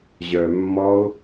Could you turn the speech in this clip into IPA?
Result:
ʑ œː mː ɔ ʊ̯

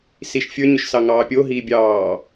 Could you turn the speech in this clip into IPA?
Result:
s i ʃ fʲ ə˞ ɲ ʏ ʃ s ɑ ŋ ɑː pʲ o ɦ iː bʲ ɑː

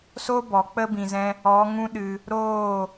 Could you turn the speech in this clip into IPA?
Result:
s o˦ b ɔ˨ k͡p ə˧ b ĩ˨ z ɛ̃˧ | ɔ˨˦ ŋ ũ˦ ɗ ɨ˧ | ɾ oː˦˨

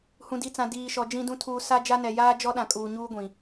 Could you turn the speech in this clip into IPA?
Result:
h ũ˨ d i˨ t͡s ã˨ d iː˨ ʃ ɔ˨ d͡ʒ ĩ˨ d ũ˨ tʰ uː˨ s a˦ d͡ʒ a˦ n ɛ˨ j aː˦ d͡ʒ ɔ˦ ɗ ã˨ kʼ uː˨ ɲ uː˦ ɡʷ ĩ˨

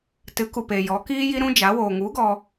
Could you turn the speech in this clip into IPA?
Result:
t ɨ˨˦ k u˨ p e˨ j ɔ˨˦ k iː˦ j i˦ ɾ ũ˦ d͡ʒ a˨˦ w oː˨ ŋ u˨˦ ɡ ɔ˧

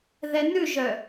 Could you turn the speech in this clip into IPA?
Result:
ð ɛ n ʉ ʒ œ

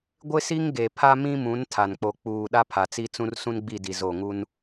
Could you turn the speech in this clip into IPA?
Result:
ɡʷ ɪ˦ s i˦ ŋ ɡ e˨ pʰ a˦ m ĩ˦ m ũ˨˦ n tʰ a˨ n k͡p o˨ k͡p uː˨ ɗ a˦ pʰ a˨ t͡s i˦ t͡s ũ˦ r s ũ˦ n ɡ͡b i˦˨ d i˨ z o˦˨ ŋ u˦ n

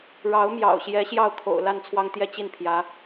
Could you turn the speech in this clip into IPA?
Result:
ɻ ɑ˧˥ ʊ̯ m j ɑ̰˨˩ ʊ̯ ɕ j ɛ˧˥ ɕ j ɑ˥˩ ʊ̯ kʰ o̰˨˩ ʊ̯ l a˥˩ n t͡sʰ w ɑ˥ ŋ t̪ j ɛ˥ t͡ɕ i˥˩ n pʰ j ä˧˥

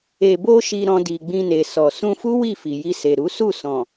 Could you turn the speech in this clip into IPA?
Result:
e˨ b o˧ ʃ i˧ ɾ ɔ̃˧ d i˨ ɡ͡b ĩ˧ n e˨ s ɔ˨ s ũ˧ f u˦ w i˦˨ f i˨ j i˧ s e˨ ɾ u˨˦ s u˦˨ s ɔ̃˨

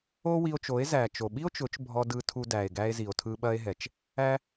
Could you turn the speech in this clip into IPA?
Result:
o˦ w i˧ o̯ t͡ʃ o˨˦ e̯ z æ˨ t͡ʃ o˨ ɓ i˦ o̯ t͡ʃ ʊ˨˦ t͡ʃ bʱ ɔ˧ d ɯ˧ tʰ u˧ d æ˨ e̯ ɡ æ˧ e̯ z i˨ o̯ tʰ ɯ˧ ɓ ɐ˧ e̯ ɦ ɛ˨ t͡ʃ | æ˦

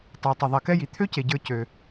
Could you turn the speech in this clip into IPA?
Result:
tˤ e˨ tˤ ə˨ ðˤ i˨ k ɛ˦ j i˨ t̪ʰ ø˦ c e˨ ɟ ə˞˧ c ø˧

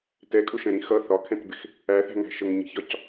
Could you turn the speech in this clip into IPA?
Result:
t ɛ kʼ ʊ ʃ ɛ̃ ɾ ĩ x ʌ θ ɒ kʰ ɛ̃ t b ɪ x | æ θ æ̤ ŋ æ̤ ʃ ə ŋ ɲ i̤ ç ɒ c

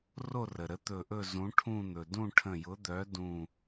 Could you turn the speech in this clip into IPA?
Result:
r o˥˧ r ə˩ ɾ ə˨˥ t̪ ɵ˧˩ ʔ ɵ˥˧ z ũ˨˥ ʈʰ ũ˥˧ n̪ ɵ˩ d ũ˥˧ ʈʰ ə̃˧˩ j ʊ˨˥ d̪ œ˨˥ d ũ˧˩

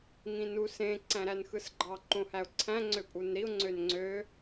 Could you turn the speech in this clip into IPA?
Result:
ŋ ĩ n u s ẽ ǀ æ̃ ɾ æ n x ɯ s ɡ͡ǃ ɑ ǃ õ h æ ʊ̯ ǀʰ æ̃ ŋ͡ǀ ø pʼ u n ɾ i ʊ̯ ŋ͡ǀ ø n ŋ͡ǀ ø

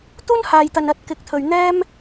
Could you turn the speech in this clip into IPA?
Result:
t̪ uː˥ n h aː˨ j t̪ ɐ˨ n ɐ˧ t̚ k ɪ˨˥ k̚ t̪ʰ ɵ˨ ɥ n̪ ɛː˥ m

